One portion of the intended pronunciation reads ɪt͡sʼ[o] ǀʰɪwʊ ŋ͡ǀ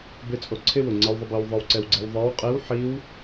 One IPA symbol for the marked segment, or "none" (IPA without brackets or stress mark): o